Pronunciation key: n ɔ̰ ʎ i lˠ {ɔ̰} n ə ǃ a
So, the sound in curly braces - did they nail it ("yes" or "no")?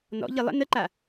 no